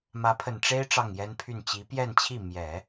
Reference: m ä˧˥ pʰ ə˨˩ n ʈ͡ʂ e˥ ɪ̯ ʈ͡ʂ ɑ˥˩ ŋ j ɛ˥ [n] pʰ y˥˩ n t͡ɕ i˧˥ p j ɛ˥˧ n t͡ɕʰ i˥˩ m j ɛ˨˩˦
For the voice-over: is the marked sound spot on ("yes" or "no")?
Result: yes